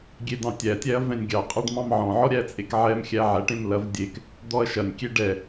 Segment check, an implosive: absent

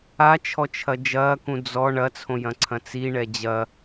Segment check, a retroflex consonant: present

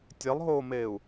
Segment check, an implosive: absent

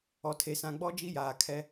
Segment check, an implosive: absent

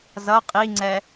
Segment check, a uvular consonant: present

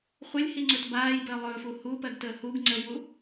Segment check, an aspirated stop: absent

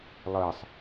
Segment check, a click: absent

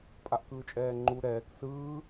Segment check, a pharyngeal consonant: absent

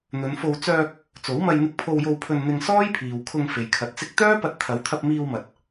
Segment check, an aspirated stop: present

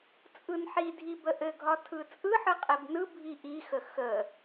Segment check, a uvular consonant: present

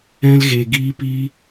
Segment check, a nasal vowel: present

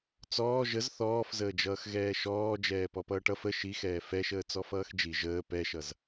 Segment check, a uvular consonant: absent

